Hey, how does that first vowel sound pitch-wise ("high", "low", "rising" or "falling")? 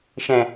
low